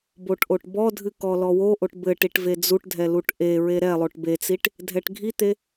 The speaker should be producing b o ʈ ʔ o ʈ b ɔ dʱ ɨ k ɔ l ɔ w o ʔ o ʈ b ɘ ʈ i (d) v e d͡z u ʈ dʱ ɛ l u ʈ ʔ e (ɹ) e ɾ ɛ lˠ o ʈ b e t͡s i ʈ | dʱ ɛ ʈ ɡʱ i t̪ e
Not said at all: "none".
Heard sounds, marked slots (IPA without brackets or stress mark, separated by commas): ʈ, ɹ